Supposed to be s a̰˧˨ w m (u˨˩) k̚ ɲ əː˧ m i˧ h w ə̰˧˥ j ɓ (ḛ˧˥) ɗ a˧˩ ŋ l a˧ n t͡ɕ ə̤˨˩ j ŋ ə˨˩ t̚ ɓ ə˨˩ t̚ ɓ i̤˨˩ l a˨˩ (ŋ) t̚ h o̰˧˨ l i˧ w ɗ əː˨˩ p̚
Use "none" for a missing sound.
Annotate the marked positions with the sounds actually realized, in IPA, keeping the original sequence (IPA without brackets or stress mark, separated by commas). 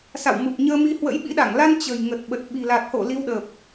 u˨˩, ḭ˧˥, none